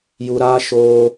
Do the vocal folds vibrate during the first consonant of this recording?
yes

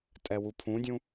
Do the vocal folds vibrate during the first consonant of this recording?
no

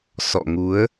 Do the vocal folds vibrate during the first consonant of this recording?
no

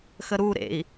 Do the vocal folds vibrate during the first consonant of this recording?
no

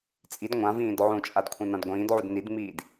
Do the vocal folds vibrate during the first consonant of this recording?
no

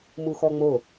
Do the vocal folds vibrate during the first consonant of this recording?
yes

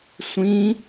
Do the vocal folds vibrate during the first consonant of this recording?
no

